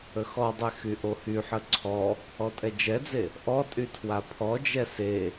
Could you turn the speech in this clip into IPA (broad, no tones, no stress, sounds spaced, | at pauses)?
ə x ɔ dˤ ɛ x y ʔ o h y ħ ə ǀʰ ɔ | ɔ tʼ ɛ d͡ʒ ɛ d͡z e | ʔ ɔ tʼ y tʰ w a pʰ ɔ d͡ʒ ɛ s e